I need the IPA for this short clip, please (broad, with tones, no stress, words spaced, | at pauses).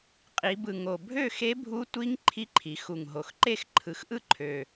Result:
qʼi˩˧bɯ˨˩ ŋo˨˩bʱø˥˨xe˧˥bʱu˧˥ tʷi˧˥ŋ ǃʰi˧˥ǃʰi˩˧xu˨˩ŋɦo˨˩x ǃe˥˨xǃʰɯ˨˩xʔɯ˥˨ǃʰø˨˩